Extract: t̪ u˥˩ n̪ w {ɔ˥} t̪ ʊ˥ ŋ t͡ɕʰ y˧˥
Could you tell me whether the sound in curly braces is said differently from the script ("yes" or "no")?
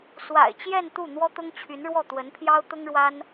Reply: no